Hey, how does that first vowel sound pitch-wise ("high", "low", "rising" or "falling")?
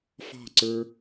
falling